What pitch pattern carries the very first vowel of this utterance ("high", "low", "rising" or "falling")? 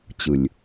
low